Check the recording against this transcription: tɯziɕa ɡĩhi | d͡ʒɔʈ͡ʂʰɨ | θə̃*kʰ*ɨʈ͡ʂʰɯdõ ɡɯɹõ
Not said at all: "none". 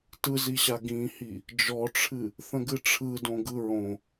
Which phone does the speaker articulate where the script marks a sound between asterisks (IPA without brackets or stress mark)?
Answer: ɡ